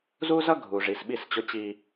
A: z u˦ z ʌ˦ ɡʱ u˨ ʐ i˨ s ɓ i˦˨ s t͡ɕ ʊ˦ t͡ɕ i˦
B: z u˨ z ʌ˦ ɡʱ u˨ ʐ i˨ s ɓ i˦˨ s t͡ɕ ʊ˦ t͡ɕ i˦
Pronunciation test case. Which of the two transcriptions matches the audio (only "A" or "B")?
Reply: A